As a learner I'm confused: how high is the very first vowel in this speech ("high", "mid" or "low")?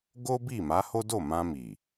mid